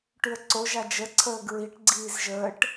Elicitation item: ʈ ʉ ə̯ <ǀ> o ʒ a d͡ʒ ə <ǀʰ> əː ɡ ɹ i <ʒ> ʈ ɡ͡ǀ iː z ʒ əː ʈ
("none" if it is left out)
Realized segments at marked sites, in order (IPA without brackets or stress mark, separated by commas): ǀ, ǀʰ, none